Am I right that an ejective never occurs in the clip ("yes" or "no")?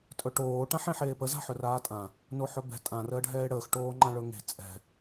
no